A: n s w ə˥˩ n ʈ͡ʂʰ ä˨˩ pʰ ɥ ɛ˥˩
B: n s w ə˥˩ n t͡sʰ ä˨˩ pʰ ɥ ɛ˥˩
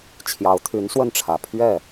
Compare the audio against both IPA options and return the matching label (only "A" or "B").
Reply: A